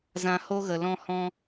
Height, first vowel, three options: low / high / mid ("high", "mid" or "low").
low